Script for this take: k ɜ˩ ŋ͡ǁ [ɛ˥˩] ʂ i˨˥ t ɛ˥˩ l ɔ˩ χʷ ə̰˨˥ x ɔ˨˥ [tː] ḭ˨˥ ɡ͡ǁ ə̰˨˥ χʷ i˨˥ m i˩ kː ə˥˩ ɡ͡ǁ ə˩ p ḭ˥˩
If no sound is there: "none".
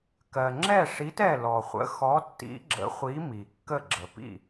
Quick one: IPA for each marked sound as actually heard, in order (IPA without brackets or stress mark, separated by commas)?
ɛ˥˩, tː